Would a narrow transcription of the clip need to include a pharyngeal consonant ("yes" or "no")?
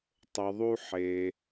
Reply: yes